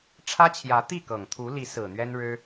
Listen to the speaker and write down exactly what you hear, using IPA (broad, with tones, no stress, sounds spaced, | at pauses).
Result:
ʈ͡ʂʰ ä˥ t͡ɕʰ j ä˧˥ t̪ i˥˩ k ɤ˨˩ ŋ t̪ʰ u˧˥ l i˧˥ s ɹ̩˨˩ n̪ ɥ ɛ˥ n ɻ ɻ̩˥